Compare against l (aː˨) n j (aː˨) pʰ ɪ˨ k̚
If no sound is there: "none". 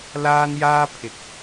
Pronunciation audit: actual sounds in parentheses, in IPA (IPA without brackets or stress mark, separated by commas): aː˥, aː˥